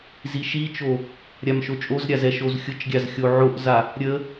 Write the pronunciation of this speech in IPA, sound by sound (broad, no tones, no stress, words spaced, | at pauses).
ziʃit͡ʃo | ɾʲamʃot͡ʃʼozɾʲa zɛʃozxʲʊt͡ʃɡʲaz xʲoʕoʔza | ɾʲə